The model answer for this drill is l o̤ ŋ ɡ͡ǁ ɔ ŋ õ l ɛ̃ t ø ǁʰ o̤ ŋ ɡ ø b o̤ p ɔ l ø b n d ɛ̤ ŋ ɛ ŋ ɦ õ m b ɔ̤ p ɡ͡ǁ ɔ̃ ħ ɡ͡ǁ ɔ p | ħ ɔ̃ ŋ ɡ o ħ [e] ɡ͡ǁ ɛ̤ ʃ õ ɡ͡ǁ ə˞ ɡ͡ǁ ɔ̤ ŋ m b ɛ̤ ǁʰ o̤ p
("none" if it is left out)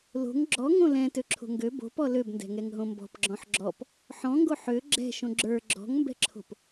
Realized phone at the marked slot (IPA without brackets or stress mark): ø